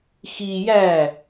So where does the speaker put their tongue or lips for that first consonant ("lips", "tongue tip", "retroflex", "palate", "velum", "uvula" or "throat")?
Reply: velum